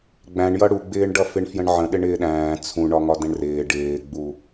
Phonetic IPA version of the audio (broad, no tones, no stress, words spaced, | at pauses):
ɡ͡bæ̃ɳjʌ ɽuɡ͡bɪːɳ ɖʌfɪɳfjə̃ɳʕə̃ ɗɪɳɪːɗæ̃ː t͡sʰũ ɳɒŋɒdɛ̃ɳrɪː ɖɪːɡ͡bu